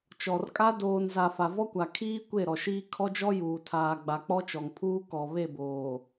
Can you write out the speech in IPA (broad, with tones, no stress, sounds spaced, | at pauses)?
t͡ʃ ɔ˨ r kʼ a˦ d oː˨ n z a˨ f a˨ v ɔ˦ kʷ a˨ kʰ iː˦ kʷ e˦˨ ɾ ɔ˨ ʃ iː˦ kʰ ɔ˦ d͡ʒ ɔ˦ j uː˨ tʰ aː˨ ɡ͡b a˨ k͡p ɔ˦ t͡ʃ ɔ˨ ŋ pʰ uː˦ k ɔ˨ β e˦˨ b oː˨